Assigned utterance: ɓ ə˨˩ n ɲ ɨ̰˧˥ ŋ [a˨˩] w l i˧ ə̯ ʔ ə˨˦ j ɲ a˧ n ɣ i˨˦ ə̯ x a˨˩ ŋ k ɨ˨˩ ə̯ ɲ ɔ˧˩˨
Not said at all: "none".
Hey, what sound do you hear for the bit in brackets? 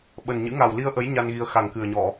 a˨˩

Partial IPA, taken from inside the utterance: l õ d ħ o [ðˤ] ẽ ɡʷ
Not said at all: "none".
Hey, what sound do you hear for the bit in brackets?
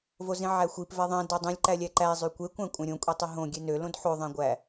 ðˤ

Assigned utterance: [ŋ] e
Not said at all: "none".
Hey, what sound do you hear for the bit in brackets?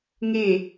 ŋ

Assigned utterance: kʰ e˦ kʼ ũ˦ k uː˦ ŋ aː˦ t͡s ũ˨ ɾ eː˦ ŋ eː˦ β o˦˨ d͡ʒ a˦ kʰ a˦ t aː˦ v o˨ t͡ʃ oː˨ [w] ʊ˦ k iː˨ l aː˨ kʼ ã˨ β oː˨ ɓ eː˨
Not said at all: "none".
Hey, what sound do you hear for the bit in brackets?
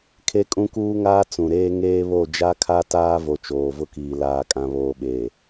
v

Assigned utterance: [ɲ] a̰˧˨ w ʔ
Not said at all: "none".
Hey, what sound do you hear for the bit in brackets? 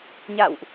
ɲ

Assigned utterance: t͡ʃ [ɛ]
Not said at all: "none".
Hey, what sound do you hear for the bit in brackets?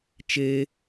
e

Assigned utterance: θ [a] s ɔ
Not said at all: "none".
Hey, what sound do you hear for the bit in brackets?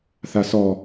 a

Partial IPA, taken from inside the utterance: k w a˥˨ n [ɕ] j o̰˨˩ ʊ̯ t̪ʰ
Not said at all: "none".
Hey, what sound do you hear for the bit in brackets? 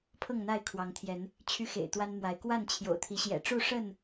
t͡ɕʰ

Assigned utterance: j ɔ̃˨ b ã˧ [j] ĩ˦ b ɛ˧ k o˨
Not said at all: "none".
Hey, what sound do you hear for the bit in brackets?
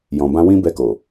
w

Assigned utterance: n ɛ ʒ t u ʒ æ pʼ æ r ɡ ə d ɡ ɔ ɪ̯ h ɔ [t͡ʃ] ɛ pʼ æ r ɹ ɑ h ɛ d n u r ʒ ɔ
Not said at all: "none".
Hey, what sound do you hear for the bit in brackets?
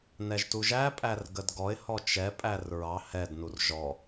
t͡ʃ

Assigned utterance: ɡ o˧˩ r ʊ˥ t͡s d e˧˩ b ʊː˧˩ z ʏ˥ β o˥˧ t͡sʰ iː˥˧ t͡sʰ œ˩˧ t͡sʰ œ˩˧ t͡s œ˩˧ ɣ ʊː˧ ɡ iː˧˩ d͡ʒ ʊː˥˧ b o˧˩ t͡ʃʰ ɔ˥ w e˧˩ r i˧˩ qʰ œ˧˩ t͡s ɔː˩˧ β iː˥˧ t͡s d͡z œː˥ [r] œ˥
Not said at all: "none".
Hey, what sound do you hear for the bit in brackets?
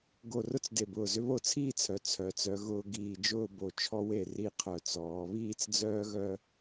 ɣ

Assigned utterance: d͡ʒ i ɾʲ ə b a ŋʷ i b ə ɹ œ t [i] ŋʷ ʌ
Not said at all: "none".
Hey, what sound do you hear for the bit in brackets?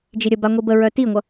i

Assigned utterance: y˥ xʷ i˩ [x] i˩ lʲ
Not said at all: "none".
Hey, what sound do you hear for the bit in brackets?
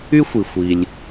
xʷ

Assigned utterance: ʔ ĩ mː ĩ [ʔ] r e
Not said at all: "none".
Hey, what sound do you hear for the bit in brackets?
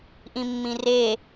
none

